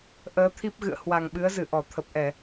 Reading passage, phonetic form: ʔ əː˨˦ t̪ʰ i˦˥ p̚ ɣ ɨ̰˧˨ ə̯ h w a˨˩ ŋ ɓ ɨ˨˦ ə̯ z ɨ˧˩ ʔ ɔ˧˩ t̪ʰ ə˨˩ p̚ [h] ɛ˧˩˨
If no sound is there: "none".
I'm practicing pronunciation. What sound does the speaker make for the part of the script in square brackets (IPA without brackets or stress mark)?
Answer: ʔ